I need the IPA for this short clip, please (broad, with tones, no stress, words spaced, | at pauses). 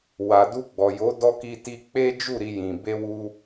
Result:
wa˨du˧ɡ͡bɔ˨jo˨˦ dɔ˧ ki˧ti˧ k͡pe˦d͡ʒu˦˨ ɾi˧jĩ˨ be˧wu˧